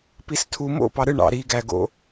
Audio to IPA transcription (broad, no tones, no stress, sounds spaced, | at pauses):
p i s tʰ u m o̰ p ɑ ɾ ɯ ɳ ɑ̰ ɾ i ɡ æ ɡ o̰